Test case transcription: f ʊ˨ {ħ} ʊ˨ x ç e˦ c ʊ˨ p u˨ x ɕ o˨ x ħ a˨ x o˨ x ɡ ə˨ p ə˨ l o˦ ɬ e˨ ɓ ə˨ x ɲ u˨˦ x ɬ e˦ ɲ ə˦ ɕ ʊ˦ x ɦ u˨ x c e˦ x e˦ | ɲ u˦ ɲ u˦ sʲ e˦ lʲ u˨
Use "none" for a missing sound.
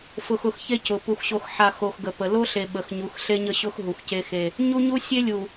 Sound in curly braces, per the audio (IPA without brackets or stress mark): x